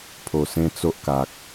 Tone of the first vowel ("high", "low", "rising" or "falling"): low